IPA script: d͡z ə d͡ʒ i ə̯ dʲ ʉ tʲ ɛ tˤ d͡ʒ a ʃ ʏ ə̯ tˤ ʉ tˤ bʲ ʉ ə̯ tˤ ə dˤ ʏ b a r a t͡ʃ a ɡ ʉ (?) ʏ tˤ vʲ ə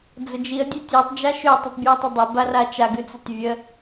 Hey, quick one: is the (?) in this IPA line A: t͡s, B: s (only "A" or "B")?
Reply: A